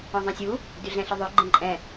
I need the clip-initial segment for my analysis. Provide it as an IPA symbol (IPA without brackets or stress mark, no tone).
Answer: ɔ̃